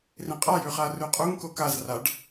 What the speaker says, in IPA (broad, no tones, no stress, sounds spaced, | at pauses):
r ĩ qʼ a j ʉ χ a r ʉ qʼ u ŋ k o k a z r a ɖ